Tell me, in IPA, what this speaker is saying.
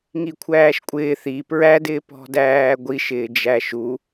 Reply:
ŋikʷʰæːʃkʷʼɪː θi pɹædɪː pɔ̤dæːɡʷiʃɪː d͡ʒæʃu

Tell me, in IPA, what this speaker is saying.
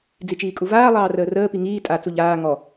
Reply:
d͡zit͡ʃiːkʼuvaː lˠɑːrəːrəː piŋiː tʼa t͡suʎaː ŋɔ

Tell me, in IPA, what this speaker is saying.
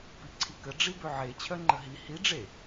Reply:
piǀʰikə ɖ͡ʐibøʕe t͡ɕʰœŋ͡ǃəɦi hi ɖ͡ʐe

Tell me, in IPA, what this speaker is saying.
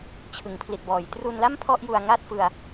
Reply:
t͡ɕʰɯ˩˦ŋpʰli˨˩t̚bɔː˩˦j tru˧nla˥˩m pʰɔ˥˩ʔju˧a̯ ŋa˦˥t̚ fɯ˧a̯

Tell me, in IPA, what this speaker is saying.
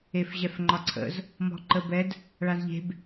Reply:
efʑɛfŋ͡ǃɒǀʰə̰z | mɔ̤ǃəbɛd | ɭazʎe̤b

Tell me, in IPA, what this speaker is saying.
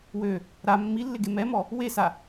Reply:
wø | ɾa mːilːɪɡe mɛmɔ | wesa

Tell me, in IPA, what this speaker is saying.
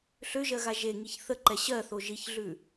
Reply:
ɬøʒɜɣa ʒeŋiç θəǃɛ ɕɜθo ʒiçɮʉ

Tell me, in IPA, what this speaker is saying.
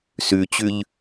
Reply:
sʉt͡ɕʉʎ

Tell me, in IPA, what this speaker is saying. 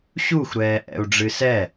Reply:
ɕuxʷɾɛːʔɛ̰u̯ɖ͡ʐɨ sɛ

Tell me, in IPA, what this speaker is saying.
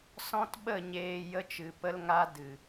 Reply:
sɔ̃˦tɓə˦˨ ɲeː˧ jə˦t͡ʃɨ˨pə˦lŋa˦ dɨ˨

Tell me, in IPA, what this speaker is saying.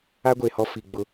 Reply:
a˦ɡʷe˨hɔ˦ fi˨ɡ͡bʊ˦

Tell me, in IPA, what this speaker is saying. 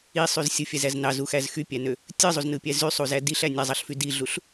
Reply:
isˤyz sʲɯfʲæzæz nɑzuxæz xypʲænø | tʲɯzˤuznɯpʲæ zysˤuzæ diɬæ nʲæzˤɑɬfy diɮuɬ

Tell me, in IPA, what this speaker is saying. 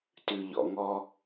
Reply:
tʉ˨ ʎɔ̰˨ŋɔ˧

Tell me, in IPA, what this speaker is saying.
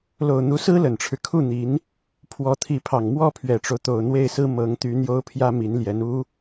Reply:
lo˨˩ʊ̯n̪u˧˥sɹ̩˥ lə˨˩nʈ͡ʂʰɻ̩˦ kʰu˥˩n̪i˧˥n | pʰwɔ˧˥t̪ʰi˧˥pʰɑ˨˩ŋ mwɔ˥˩pʰɥɛ˨˩ʈ͡ʂo˦ʊ̯t̪o˨˩ʊ̯ n̪we˥˩ɪ̯sɹ̩˥ mɤ˧˥ŋt̪y˧˥ n̪jo˥ʊ̯pʰjä˥ mi˧˥nljɛ˧˥n u˥

